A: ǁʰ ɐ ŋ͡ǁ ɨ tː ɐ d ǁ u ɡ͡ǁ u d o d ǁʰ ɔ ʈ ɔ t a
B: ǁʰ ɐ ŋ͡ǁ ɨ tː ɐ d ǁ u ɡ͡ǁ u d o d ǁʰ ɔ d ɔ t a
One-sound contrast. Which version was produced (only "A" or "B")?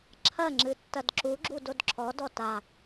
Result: B